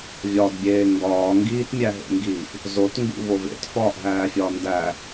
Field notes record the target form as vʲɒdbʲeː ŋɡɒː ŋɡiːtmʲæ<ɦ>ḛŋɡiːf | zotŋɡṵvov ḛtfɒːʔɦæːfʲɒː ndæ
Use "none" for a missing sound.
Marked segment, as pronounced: ɦ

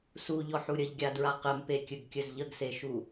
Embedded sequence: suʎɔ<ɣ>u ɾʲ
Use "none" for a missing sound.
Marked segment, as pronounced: ħ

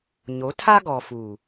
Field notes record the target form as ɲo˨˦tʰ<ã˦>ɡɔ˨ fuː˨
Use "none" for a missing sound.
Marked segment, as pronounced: a˦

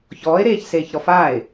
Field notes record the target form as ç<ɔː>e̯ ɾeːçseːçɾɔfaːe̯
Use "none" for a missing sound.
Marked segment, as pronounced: ɔː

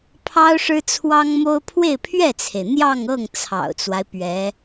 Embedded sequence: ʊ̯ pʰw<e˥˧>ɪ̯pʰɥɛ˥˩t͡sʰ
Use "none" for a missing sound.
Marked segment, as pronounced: e˥˧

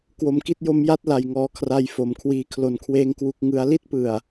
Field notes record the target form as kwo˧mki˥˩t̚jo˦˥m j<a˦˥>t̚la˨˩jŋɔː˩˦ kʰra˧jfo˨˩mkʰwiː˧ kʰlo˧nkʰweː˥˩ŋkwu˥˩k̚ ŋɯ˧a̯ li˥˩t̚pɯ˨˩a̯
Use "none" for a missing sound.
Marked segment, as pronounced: a˦˥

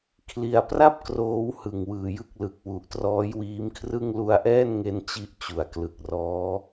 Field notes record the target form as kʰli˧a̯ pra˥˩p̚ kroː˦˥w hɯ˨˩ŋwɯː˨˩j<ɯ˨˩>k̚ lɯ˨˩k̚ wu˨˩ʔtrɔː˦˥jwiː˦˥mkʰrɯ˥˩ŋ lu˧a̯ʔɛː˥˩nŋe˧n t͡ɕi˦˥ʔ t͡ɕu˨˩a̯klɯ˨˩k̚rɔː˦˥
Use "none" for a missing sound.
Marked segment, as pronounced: ɯ˥˩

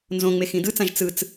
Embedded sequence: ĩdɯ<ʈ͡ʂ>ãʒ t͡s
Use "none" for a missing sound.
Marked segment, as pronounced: t͡s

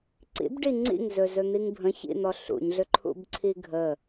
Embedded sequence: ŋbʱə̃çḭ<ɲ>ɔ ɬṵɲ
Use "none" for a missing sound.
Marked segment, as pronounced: n̪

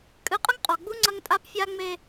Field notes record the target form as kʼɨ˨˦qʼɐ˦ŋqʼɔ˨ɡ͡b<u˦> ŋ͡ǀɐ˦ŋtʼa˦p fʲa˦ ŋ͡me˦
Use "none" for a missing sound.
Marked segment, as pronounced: u˦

